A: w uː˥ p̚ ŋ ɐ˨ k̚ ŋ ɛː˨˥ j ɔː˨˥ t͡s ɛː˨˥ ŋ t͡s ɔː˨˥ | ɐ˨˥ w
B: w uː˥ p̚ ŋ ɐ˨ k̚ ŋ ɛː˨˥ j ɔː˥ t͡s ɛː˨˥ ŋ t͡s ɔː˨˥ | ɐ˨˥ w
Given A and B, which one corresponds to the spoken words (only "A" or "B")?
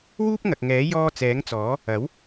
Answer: B